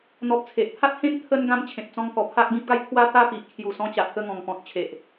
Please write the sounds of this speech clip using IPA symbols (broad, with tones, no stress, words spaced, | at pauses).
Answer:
n̪ɔ˨p̚ t͡sʰe˨ʔpʰa˦t̚ hẽ˦n t̪ʰə˧nɡã˧m t͡ɕʰẽ˨p̚t͡sɔ̃˧ŋkɔ˨˩ pʰa˦k̚ɡĩ˦p̚ɡa˦j t̪ʰwa˦ t̪a˥˧pi˨ʔ kʰju˨˩sɔ̃˧t͡ɕa˨ʔ kə˧ŋɔ̃˨˩ŋ pɔ̃˨t̚ t͡ɕʰe˨ʔ